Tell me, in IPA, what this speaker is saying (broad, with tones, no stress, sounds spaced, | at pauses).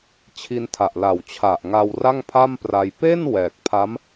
t͡ɕʰ i˧ n tʰ a˨˩ ʔ l a˨˩ w t͡ɕʰ a˨˩ ʔ ŋ a˧ w r a˥˩ ŋ pʰ a˥˩ m p r a˧ j p e˥˩ n w ɛː˨˩ k̚ pʰ a˦˥ m